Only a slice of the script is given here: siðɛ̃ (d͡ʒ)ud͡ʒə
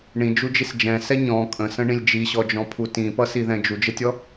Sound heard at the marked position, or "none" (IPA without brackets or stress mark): d͡ʒ